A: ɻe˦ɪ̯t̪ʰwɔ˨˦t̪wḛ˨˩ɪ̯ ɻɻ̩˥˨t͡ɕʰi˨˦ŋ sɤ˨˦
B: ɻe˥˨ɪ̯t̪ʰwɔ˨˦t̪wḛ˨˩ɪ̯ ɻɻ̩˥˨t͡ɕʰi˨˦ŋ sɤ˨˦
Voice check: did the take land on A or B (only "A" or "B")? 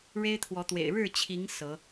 A